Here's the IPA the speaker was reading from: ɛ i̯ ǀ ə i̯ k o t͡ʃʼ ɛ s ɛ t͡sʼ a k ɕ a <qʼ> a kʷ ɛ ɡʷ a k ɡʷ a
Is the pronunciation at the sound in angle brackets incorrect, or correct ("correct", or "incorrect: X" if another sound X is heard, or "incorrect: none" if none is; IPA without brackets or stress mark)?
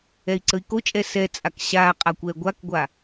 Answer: correct